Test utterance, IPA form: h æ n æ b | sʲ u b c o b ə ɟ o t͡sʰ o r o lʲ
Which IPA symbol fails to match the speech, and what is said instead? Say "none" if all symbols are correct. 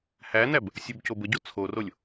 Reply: none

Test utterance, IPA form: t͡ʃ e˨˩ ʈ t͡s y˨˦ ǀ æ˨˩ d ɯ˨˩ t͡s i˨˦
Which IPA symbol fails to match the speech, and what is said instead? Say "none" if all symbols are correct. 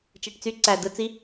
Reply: none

